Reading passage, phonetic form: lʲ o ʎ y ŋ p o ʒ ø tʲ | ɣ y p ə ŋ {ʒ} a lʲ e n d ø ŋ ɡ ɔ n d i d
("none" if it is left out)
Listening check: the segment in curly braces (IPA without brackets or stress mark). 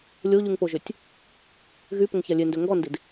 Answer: ç